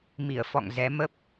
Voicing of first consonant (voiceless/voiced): voiced